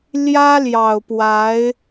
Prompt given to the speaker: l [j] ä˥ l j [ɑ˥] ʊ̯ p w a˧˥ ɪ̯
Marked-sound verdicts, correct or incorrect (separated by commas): correct, incorrect